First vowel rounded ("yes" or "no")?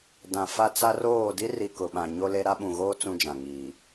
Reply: no